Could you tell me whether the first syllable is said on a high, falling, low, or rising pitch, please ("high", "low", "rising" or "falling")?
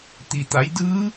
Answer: low